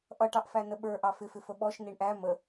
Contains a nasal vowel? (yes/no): no